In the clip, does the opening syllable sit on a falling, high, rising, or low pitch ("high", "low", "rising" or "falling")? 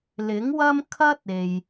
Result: rising